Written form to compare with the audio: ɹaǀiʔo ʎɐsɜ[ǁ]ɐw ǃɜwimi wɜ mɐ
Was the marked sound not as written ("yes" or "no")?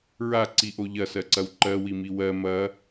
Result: yes